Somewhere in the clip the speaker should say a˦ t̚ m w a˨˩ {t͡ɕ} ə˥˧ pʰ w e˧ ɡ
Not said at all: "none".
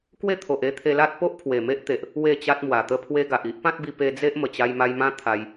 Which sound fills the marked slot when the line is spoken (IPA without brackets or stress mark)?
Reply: t̪